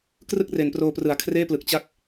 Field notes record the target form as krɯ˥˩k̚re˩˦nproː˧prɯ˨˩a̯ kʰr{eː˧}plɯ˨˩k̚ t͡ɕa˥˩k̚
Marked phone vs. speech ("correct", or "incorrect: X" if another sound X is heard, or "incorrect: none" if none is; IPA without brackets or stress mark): incorrect: eː˥˩